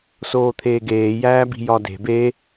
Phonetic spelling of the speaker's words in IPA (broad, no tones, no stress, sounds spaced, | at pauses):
s oː t̪ʰ eː ɡ eː j æː b i̤ j ɒ d e̤ b e